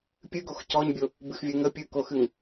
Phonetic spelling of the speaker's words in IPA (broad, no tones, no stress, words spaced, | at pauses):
pʲɨɡox cɔɲbʲo | bɨxvʲɨ ŋə pʲɨkoxɨŋ